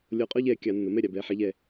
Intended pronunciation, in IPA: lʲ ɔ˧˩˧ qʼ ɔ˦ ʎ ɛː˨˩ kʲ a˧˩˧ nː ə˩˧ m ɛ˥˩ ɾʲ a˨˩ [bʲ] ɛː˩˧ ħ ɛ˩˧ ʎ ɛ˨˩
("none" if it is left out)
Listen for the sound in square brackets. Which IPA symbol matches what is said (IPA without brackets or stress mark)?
b